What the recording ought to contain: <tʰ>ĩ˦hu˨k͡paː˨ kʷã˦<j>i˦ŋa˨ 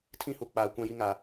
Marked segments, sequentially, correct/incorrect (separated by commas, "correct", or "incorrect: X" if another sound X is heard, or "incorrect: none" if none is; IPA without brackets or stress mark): correct, correct